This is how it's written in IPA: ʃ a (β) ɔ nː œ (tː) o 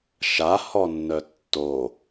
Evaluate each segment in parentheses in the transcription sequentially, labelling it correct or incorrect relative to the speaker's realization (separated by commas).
incorrect, correct